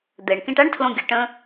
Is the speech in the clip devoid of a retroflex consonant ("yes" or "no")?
no